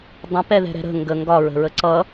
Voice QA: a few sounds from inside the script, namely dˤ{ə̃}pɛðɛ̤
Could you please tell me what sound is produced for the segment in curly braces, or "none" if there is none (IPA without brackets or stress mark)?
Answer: ə̃